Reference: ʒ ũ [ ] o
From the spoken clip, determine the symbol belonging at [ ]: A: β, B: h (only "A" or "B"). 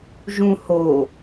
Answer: B